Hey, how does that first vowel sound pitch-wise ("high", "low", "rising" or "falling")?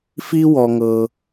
high